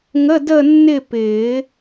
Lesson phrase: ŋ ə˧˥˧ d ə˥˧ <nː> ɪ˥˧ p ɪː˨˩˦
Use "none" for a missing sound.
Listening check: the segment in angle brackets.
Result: nː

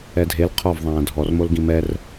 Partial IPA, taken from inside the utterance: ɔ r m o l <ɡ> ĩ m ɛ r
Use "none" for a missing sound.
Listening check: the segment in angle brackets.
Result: ɡ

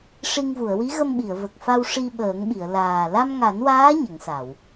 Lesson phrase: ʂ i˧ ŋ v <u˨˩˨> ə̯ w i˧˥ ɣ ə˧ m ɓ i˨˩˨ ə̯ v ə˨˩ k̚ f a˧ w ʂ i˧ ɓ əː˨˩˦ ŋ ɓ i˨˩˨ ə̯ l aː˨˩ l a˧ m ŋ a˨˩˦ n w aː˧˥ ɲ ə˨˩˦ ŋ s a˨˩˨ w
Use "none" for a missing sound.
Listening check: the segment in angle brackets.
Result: u˨˩˨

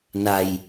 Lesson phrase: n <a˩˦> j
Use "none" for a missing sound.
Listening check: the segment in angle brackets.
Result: a˧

